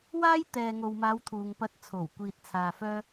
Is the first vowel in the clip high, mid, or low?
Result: low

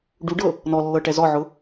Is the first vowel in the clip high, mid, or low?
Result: high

